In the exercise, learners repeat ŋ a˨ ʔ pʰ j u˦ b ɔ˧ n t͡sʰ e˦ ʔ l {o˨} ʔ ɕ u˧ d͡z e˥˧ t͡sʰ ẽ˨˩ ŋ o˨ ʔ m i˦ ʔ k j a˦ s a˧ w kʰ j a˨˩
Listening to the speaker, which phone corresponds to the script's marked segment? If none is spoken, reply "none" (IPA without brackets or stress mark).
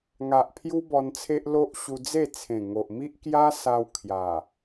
o˦